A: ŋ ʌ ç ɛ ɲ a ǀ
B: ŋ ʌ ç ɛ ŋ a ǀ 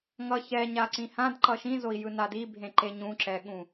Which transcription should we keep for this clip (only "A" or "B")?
A